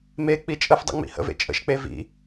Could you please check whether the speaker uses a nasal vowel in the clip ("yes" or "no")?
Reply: no